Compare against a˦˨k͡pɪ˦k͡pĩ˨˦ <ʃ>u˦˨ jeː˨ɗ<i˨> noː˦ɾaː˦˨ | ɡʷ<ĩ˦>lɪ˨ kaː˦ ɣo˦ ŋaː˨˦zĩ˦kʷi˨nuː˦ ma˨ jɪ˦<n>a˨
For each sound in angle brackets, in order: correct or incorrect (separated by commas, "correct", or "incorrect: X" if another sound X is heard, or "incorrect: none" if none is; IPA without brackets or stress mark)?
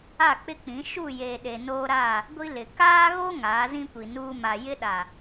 correct, incorrect: e˨, incorrect: i˦, incorrect: ɗ